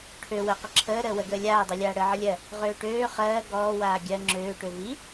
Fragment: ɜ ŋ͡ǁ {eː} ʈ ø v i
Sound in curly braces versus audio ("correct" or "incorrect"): incorrect